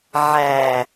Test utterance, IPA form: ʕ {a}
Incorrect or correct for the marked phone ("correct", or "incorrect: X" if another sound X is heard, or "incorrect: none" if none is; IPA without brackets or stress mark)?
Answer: incorrect: æ